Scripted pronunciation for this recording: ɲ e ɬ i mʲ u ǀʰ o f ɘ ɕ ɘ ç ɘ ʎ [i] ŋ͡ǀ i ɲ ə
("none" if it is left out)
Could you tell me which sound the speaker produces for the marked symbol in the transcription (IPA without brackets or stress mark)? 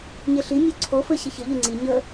y